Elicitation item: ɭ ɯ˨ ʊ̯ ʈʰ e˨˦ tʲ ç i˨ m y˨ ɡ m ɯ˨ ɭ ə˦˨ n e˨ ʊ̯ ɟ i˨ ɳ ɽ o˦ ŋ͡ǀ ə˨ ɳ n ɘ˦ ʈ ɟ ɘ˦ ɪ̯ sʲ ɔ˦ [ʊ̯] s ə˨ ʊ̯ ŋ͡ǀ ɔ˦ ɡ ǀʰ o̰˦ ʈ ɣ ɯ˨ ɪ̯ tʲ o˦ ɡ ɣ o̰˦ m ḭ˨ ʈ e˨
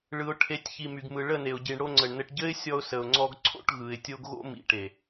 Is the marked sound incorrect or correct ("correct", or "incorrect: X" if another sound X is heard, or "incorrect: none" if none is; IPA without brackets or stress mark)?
correct